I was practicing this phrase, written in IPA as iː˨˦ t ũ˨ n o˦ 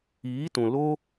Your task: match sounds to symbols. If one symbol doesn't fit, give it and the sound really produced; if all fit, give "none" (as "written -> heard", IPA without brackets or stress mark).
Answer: n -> l